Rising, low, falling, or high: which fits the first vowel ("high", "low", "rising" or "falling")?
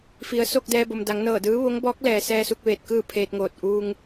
low